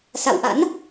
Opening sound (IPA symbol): s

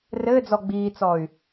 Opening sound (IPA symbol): r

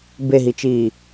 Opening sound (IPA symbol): b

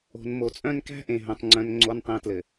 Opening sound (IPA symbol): o̤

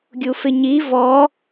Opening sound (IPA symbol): ɡʲ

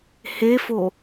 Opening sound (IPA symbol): h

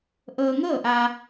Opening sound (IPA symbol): ʔ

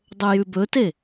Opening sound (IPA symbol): dˤ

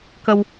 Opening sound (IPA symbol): k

